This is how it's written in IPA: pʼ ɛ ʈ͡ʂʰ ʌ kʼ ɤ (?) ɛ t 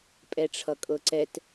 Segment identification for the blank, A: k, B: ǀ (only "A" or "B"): B